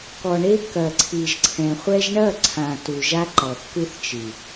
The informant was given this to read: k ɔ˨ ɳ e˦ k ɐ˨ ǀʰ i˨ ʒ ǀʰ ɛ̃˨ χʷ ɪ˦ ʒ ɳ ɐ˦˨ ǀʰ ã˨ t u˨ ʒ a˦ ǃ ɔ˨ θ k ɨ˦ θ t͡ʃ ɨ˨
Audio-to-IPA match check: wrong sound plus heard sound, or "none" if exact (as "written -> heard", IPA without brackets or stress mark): ɪ˦ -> ɛ˦